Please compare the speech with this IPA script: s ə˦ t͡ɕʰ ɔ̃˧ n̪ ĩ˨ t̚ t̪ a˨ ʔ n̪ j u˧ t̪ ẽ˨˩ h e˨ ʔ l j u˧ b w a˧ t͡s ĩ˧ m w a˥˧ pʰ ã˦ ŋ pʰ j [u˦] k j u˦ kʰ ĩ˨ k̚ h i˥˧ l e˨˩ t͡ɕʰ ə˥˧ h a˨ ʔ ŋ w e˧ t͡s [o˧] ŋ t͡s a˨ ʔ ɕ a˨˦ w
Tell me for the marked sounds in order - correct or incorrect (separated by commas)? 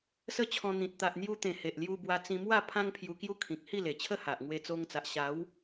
incorrect, correct